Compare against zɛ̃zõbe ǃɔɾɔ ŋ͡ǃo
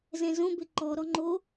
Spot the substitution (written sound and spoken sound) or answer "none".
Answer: none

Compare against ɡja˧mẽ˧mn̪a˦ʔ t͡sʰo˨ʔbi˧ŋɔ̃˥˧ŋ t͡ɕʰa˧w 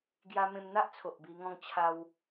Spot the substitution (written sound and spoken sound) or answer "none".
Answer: none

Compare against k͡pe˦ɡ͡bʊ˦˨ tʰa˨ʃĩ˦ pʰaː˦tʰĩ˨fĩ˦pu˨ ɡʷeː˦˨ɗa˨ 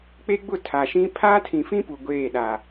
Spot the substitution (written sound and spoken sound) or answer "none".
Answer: none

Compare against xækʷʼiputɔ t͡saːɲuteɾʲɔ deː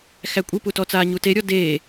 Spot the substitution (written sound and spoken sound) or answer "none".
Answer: none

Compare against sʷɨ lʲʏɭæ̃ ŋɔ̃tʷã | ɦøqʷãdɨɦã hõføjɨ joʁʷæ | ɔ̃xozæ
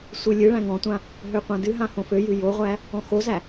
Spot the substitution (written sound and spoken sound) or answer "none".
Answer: ʏ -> ɨ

